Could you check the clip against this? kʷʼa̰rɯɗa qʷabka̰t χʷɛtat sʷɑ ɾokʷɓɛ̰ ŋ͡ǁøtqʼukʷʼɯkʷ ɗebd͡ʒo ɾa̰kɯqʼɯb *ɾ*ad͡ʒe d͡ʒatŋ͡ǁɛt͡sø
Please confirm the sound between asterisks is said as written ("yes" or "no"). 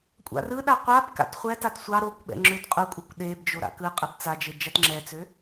no